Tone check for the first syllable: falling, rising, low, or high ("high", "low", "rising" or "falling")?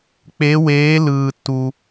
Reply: rising